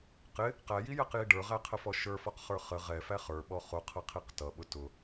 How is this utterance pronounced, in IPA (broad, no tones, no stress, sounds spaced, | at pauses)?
q ɪ | q æ j i j ɛ q j i ɖ ə˞ ʁ æ qʰ ə f ɔ ʃ ə˞ f ɔ q χ ə˞ χ ə ʁ ɛ f æ χ ə˞ ɓ ɔ χ ʊ qʰ ʌ qʰ i q t ʌ ɓ ʊ t ʊ